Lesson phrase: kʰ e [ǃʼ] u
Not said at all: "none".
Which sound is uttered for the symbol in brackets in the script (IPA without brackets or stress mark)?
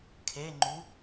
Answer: ŋ͡ǃ